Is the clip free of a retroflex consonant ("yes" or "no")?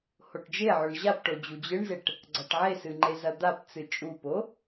no